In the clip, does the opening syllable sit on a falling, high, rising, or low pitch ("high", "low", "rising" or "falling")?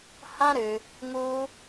high